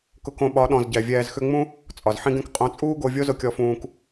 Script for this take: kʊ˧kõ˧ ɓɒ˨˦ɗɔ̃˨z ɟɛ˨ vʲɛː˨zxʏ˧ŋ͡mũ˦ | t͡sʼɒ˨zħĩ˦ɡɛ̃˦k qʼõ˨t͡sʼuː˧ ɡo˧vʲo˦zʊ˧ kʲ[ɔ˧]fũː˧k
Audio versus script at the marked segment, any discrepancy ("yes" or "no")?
no